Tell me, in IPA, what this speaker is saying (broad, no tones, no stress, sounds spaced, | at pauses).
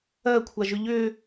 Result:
ɜ kʷʰ a ʒ ʏ ʎ ʏ